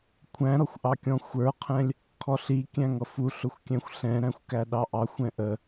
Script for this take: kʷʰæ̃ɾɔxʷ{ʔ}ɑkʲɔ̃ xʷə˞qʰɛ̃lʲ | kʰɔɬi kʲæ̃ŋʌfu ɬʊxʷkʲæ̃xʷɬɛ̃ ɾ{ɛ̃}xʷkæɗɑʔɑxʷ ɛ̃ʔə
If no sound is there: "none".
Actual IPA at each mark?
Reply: ʔ, æ̃

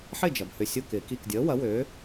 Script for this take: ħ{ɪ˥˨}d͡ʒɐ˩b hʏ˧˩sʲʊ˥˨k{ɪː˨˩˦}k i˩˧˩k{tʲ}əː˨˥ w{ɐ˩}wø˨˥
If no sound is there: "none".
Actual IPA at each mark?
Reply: ɪ˥˨, ɪː˨˩˦, dʲ, ɐ˨˥

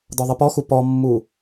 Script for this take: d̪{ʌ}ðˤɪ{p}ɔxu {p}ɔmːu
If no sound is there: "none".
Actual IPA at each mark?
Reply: ɒ, p, p

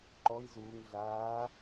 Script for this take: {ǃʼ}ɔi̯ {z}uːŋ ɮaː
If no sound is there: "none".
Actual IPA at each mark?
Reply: ǃ, z

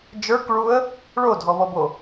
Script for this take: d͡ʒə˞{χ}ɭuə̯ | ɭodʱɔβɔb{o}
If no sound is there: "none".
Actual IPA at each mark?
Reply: k, o

